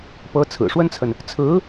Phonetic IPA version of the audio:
pɤ˧˥t͡sʰɹ̩˨˩ʂwə˥nt͡sʰə˨n | t͡sʰɹ̩˧˥

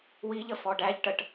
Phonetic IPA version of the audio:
wiʎə fɔɖæʎʈəʈ

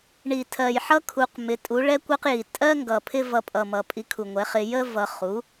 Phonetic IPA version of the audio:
ɳi˨˩tʰɜ˨˩jħʌ˥ kʰu˧q mɪ˩˥tʼu˩˥ ɭɛ˥kʷɜ˥qji˨˩ tʼɜ˥ŋɡʌ˨˩ pʰɪ˥vʌ˧pʼʌ˨˩mʌ˨˩ pʼi˧kʰu˨˩ŋʷɛ˩˥ χɪ˧ jə˥ vʌ˧ χu˩˥

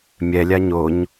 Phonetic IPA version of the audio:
mʲɛlʲa ɲoɲ

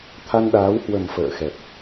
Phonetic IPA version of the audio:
t̪ʰa˧nɗaː˨˦whwə˨˩m fə̰ː˧˨xɛ˨˩p̚

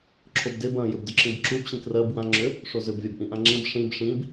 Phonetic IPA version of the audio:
ǁʰobdeb ɐ̃ jʏbdʏǁĩbǁub ɕĩkrɜb wã ŋ͡ǁʏ | ʂozʏb vʲabʔĩʔãŋ͡ǁĩb ʂĩb ʂĩb

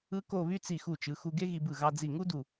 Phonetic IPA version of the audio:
ɯ˥ko˥˧βy˥ t͡si˧˩xu˧˩t͡ʃɯ˩˧xu˧ ɡe˥ɣi˧bɯ˧˩ ɣɑ˧d͡zi˧˩ŋu˥ du˧˩

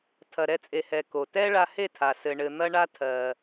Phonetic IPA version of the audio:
tʰɐ˨ ɾɛ˧t͡sʼe˨hɛ˨ ko˨tɛ˦ ɭa˧he˦˨tʰa˨ sɘ˧ɳɘ˧ n̪ɐ˦ɳa˦ tʰɜ˧

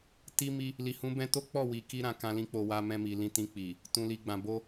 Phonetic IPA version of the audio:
ti˦mi˦ | li˨hũ˨˦bɛ̃˧to˦ k͡pɔ˦˨wi˨ki˧ ɾã˨kã˧lĩ˧k͡po˨ wa˧mɛ̃˧mi˨ lĩ˧tĩ˧k͡pi˨ | tũ˨li˨ɡ͡bã˨ bo˧

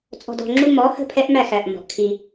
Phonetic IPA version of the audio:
t͡sʼɔ̤˧dɔ̤˧ŋ͡ǁu˦ mɔ˨˦hə̤˦˨ pʰɛ˦ʔmæ˦˨x æ˨ʔ mɔ̤˨ʔkʰi˧

